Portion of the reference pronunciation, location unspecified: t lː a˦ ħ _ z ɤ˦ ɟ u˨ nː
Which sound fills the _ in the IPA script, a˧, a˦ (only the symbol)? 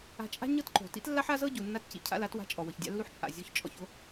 a˦